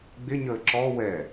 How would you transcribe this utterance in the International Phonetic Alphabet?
ɡ͡bɪɲəː ǁɔ wɛ

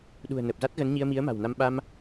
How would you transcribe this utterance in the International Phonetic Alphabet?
ɗṳ˨˩ə̯nə˨˩p̚za˦˥t̚ɣə˨˦n ɲi˧ə̯mi˨˦ə̯ma̤˨˩wna˧m ɓa˧m

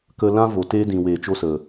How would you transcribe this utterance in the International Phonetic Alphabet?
kə˧lã˦ vo˨te˧dĩ˨weː˨ t͡ʃo˧sə˨

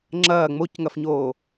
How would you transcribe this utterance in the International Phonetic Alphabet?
ŋ͡ǁɐː ŋ͡mocŋɐfɲoː

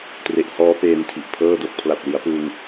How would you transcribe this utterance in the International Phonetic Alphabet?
tre˨˩ʔhɔː˦˥ peː˧ntʰi˨˩ʔ pʰɤː˥˩do˦˥k̚ pʰla˨˩t̚li˩˦a̯pɯː˧ŋ

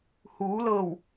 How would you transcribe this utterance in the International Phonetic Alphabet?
huː˩˧lɤː˧˩w

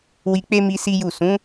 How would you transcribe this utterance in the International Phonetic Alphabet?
wi˧k͡pe˦mi˧ si˦ju˦˨ sũ˨˦

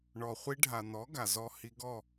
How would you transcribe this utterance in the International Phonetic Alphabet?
ɳɔ˨χʷi˧ɖʱa˨n̪ɔ˨˦ ɡa˨zɔ˦ hi˧ɡɔ˦˨

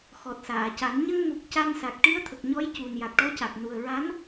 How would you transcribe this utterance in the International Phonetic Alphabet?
xɔ˨˩t̚saː˨˩˨ca˨˩˦n ɲə˧ŋmu˨˩k̚ ca˧nsa˨˩k̚ ʈi˧˥ə̯t̪ʰə˨˩k̚ɲɔ˧˥j cu˨˩n ja˨˩k̚ʈɔ˧˥ca˨˩k̚ nu˨˩ə̯ɹa˧˥n

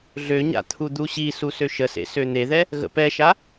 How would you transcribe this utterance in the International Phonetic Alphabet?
ɮøɲa̰ t̪ʰud̪uɕisu søʃəsḛ søn̪eðɛ | ɣə̰pɛʃa

